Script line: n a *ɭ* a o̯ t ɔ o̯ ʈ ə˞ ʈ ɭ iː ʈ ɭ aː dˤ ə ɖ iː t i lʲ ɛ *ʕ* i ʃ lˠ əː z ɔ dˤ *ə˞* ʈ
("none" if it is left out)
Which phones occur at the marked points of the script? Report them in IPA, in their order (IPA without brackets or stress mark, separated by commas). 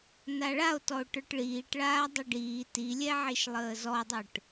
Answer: ɭ, ʕ, ə˞